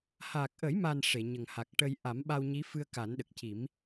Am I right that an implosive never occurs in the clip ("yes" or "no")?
no